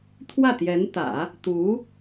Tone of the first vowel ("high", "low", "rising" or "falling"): falling